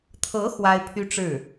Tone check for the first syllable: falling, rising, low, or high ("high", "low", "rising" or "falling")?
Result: rising